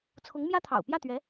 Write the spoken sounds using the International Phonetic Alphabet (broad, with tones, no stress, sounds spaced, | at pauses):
t͡sʰ ʊ˧˥ ŋ m j ä˥ t̪ʰ ɑ̰˨˩ ʊ̯ p j ä˥˩ t̪ ɥ ɛ˧˥